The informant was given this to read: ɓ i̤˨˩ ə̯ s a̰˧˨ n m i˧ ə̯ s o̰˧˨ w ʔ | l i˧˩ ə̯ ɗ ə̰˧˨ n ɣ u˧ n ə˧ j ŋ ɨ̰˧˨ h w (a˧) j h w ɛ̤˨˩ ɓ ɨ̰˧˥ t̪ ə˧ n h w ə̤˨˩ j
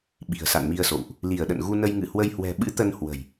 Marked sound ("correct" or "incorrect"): incorrect